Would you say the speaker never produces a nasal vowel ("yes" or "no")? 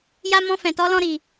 no